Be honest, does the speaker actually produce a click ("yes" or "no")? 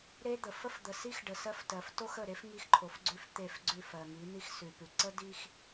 yes